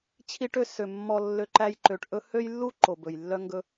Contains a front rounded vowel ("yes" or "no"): yes